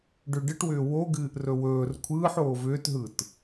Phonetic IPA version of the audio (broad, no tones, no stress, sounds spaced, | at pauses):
ɖ ʏ ɖ ɨ ʈ w ʏː w o ɡ ɨː ʔ r ɵ w ɵː r kʷʰ ɯː ħ oː v ʏː t ɦ ɯ t